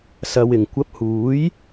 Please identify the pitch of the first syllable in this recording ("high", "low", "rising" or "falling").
low